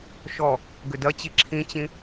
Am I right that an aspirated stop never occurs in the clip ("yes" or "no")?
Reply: no